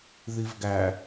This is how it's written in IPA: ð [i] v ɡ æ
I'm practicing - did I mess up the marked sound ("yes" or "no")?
no